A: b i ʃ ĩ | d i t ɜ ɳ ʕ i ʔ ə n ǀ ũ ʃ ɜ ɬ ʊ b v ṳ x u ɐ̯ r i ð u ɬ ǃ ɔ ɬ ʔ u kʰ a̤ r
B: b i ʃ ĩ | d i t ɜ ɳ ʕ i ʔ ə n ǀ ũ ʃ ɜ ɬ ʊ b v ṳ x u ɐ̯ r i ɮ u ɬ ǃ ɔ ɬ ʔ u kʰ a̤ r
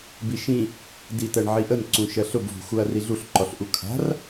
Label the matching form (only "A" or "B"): B